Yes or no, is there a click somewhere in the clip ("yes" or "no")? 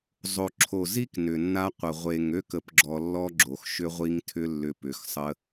yes